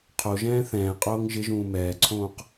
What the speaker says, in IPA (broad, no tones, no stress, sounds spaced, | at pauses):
qʰ o ʒ ɛ̃ː θ ɛ̃ː qʼ oː ŋ ʒ ɪ ʒ ũː m ɛː ǀʰ õː q